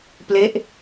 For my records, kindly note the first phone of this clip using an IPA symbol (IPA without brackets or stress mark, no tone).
p